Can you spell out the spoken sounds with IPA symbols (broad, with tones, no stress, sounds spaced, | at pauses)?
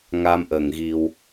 ŋ a˧ m ʔ ə˨˩ ŋ ɣ i˧ w